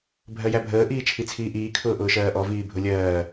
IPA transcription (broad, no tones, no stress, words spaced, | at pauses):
bʱɜjæbʱəː ʔiːt͡ʃʰit͡sʰiːʔiː kʰʊːʔʊːʃɜːʔɔ viːbʱʊlʲɜː